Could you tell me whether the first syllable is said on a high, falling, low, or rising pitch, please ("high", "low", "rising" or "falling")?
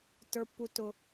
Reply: high